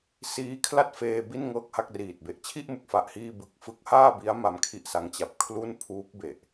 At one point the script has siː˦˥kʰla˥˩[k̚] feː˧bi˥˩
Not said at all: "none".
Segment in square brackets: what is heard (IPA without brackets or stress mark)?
t̚